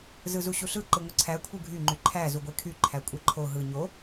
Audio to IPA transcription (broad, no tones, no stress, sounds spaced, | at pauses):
z ɯ z u ɕ u ɬ ɯ ǃ ɯ ŋʷ ɯ ǀʰ æ kʷʰ ɯ ɡʱ y ŋ͡ǃ y ǃʰ æ z u ɡʷ e kʰ y ǃʰ æ kʷʼ e ǃʰ o ɦ ɯ ɲ o